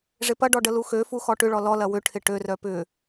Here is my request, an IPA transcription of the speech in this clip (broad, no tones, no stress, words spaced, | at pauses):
ʐɪpɐɖɔ ɖəluxøfu xɔʈʏɭɔ lɔlɐ wʏʈʰɪ ʈørœ pʏ